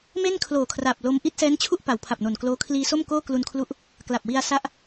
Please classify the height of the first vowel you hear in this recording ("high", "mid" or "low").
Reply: mid